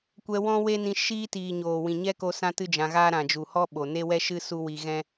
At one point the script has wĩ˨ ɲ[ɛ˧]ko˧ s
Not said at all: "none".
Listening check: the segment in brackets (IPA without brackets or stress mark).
ɛ˦